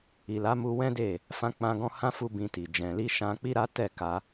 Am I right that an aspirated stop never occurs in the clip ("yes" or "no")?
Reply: yes